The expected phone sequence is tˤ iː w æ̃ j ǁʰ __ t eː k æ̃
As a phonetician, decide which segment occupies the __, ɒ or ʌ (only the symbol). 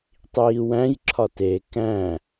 ɒ